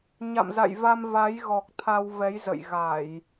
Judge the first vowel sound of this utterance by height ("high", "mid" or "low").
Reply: low